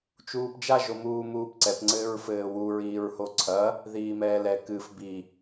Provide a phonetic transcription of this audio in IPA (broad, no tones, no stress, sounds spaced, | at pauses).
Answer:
t͡ʃ uː p d͡ʒ a ʒ o m uː m uː p ǀ ɛ p ŋ͡ǀ ɘː ɹ f ɘː w u ɹ iː ɹ h o ǀʰ ɐ | ð iː m ɛː l ɛ k ɨ f b i